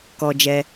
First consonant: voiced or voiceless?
voiceless